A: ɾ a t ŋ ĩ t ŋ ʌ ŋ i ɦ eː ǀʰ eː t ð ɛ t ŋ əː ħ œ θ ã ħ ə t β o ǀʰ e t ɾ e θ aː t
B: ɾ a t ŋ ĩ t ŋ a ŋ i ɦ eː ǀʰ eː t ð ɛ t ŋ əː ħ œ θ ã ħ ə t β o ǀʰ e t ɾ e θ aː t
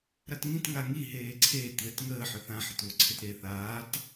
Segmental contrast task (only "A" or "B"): B